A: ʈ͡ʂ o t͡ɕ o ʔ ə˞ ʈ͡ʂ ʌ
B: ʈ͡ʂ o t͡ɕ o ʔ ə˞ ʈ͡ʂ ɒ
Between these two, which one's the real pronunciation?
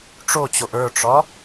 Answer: B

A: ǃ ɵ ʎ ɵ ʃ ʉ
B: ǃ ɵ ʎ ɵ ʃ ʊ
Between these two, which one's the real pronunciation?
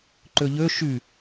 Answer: A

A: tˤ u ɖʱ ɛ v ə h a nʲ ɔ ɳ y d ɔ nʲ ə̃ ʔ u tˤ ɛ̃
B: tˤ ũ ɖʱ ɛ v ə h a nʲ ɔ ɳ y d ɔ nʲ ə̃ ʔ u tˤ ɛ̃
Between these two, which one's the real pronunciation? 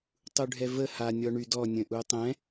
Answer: A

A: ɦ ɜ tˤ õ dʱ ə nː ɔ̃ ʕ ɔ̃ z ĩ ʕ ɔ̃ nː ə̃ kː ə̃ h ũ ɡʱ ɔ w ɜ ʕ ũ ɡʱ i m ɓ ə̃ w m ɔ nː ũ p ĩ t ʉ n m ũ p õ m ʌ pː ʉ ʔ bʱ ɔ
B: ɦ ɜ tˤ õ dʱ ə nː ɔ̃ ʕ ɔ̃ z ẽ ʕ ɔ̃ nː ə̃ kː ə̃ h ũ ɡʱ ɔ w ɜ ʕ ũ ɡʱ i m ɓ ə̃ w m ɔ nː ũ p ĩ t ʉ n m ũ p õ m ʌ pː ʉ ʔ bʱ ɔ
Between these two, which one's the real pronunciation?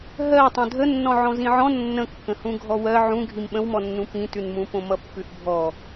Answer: A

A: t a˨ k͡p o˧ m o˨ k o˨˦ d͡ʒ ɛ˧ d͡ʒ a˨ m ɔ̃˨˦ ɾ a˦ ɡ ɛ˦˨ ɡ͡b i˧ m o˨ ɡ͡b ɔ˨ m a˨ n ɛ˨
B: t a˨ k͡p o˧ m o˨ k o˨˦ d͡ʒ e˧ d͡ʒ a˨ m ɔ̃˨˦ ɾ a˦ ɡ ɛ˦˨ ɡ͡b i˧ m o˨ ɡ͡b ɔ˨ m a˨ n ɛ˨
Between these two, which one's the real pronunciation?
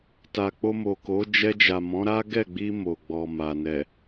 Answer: A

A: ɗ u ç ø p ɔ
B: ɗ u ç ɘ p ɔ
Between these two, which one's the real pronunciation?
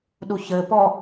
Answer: B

